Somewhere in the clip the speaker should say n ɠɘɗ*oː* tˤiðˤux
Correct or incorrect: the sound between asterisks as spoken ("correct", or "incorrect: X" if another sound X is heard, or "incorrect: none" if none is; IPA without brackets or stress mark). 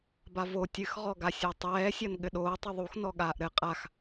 correct